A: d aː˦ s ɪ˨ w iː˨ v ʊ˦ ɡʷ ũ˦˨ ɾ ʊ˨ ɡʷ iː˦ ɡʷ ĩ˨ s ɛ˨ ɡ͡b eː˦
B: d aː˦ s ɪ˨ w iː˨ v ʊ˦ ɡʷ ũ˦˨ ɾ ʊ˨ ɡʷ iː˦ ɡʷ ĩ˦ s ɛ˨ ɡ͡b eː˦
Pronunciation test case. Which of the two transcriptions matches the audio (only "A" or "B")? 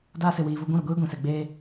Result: A